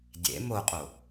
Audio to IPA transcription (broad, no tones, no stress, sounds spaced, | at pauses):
dʲ ḛ m o qʼ o